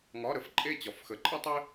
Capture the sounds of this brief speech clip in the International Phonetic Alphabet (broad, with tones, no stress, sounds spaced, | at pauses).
ŋ ɒ˧˥˧ ɾ ə˨˩ f ǃʼ e˦˨ t͡ɕ ɒ˨˩ f x ə˨˥ ǃʼ ə˥ tˤ e˥